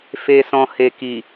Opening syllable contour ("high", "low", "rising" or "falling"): low